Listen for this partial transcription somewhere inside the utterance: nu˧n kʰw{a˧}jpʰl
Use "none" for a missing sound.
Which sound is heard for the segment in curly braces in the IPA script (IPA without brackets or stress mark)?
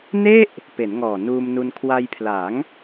a˧